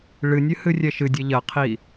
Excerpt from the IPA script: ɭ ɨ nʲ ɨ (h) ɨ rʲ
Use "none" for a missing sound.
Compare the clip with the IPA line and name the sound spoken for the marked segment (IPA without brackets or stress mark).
h